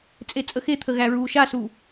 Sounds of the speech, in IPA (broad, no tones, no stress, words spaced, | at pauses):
t͡sʼet͡sʼəxet̪ʰə ɣæɹuːʃasuː